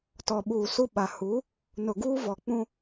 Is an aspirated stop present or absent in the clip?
absent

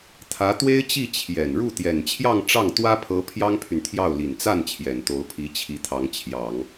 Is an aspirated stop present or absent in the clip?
present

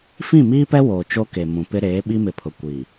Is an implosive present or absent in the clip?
present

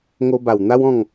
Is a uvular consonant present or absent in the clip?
absent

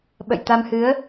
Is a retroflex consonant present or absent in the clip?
absent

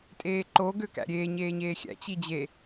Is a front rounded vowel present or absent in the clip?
present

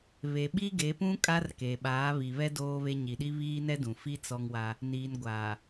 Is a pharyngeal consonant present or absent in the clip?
absent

